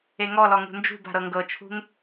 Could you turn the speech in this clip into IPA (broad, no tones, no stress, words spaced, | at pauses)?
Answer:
eŋɔlɔ ŋṳnd͡ʒṳba̤ ɾɤŋɡɤt͡ʃʰṳŋ